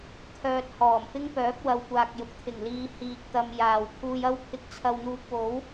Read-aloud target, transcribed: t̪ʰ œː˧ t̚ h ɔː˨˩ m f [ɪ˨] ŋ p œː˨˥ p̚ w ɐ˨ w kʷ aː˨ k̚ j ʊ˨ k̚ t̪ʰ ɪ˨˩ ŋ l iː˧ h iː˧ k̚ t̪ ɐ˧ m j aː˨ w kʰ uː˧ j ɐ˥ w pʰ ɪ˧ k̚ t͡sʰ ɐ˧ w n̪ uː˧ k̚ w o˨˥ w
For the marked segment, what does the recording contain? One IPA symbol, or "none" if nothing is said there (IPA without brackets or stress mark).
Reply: ɪ˥